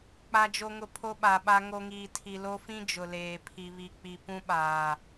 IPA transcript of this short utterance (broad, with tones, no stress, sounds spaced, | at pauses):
k͡p a˨ d͡ʒ o˨ ŋ ʊ˨ pʰ o˦ ɓ a˨ ɓ a˦ ŋ o˦ ŋ iː˨ tʰ i˨ l o˦ f ĩ˦ d͡ʒ ʊ˨ l eː˨ pʰ i˨ β i˨ k͡p i˨ p ũ˦ ɓ aː˨